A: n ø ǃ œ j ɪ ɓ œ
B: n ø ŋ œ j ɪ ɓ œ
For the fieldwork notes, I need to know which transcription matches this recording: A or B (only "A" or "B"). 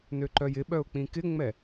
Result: A